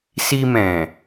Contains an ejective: no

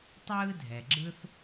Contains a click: yes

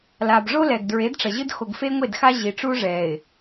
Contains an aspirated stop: no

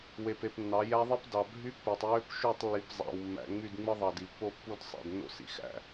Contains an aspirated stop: no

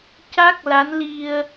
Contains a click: no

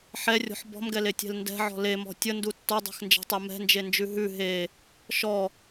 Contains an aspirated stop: no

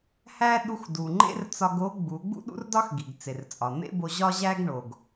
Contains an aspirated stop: no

